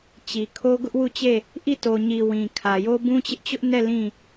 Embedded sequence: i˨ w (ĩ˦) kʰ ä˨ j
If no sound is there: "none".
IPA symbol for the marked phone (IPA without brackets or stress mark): ĩ˨